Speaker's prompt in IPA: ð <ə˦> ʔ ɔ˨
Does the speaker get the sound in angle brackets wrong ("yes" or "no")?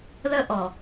no